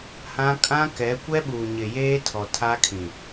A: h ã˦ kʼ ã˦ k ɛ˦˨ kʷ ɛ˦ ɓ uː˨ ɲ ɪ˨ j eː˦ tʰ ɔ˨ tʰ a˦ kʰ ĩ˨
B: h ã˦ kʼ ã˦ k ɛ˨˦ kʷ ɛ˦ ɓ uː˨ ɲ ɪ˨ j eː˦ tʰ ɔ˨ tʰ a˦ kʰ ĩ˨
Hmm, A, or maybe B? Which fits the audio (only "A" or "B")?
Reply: B